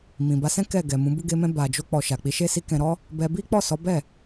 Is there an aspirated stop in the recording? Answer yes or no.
no